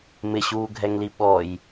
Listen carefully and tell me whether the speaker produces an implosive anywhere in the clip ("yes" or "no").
yes